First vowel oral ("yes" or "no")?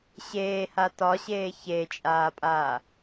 yes